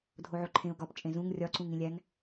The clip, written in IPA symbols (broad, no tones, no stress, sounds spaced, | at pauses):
dʱ o ʕ o ǃʰ ẽ ʊ̯ ɡ ɒ p t͡ʃʼ ẽ z ũ ŋ rʲ ɒ ǀ ũ ŋ ĩ lʲ æ ŋ